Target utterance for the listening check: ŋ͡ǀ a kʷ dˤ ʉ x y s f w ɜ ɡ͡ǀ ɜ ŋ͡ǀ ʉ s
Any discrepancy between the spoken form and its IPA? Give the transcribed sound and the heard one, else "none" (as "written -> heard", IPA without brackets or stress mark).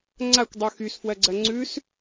none